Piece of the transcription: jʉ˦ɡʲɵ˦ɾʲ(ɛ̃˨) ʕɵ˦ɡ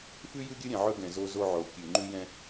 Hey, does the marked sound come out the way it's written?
yes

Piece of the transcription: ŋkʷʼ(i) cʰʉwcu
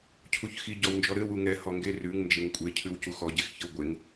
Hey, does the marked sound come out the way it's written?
no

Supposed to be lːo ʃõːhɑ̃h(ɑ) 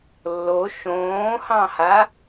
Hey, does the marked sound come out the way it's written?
no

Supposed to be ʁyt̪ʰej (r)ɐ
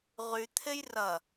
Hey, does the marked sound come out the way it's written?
yes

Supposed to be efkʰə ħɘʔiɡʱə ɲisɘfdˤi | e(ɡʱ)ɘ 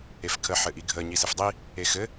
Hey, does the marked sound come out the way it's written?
no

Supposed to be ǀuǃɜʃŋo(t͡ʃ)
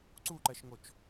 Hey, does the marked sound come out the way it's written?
yes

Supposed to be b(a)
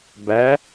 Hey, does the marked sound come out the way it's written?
no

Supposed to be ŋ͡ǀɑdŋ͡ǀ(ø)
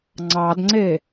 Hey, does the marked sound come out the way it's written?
no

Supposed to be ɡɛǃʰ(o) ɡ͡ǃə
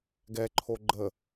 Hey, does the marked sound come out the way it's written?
yes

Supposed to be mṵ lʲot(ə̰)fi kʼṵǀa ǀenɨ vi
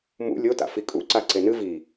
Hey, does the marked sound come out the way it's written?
no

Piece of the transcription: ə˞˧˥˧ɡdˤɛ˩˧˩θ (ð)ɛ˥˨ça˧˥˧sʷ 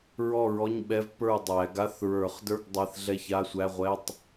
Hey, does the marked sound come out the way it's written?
no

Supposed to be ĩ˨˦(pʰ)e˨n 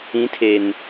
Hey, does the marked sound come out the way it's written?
no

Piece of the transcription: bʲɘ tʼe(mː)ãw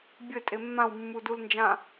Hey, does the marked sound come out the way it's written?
yes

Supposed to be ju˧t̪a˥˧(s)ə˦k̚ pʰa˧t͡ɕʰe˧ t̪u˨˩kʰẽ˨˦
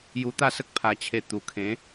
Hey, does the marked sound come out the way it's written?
yes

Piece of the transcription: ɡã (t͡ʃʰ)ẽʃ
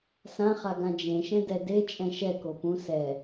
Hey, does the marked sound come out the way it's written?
no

